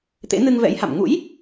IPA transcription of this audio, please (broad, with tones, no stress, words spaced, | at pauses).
t̪ḛ˧˥nɨ˧ŋvɛ̰˧˥jha̰˧˨m ŋṵ˧˥j